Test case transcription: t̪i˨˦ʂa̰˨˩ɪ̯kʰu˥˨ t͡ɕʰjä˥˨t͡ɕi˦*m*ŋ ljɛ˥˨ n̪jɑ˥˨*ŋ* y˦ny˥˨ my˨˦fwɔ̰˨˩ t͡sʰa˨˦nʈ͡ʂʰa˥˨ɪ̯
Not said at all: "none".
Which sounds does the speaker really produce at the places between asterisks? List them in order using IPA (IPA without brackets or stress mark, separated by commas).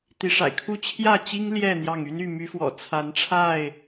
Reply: none, ŋ